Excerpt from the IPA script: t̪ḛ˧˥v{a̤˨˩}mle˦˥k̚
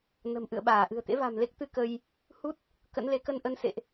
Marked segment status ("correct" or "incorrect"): correct